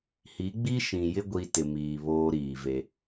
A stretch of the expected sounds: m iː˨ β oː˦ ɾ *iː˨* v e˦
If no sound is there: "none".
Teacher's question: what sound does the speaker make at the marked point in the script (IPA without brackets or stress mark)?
iː˨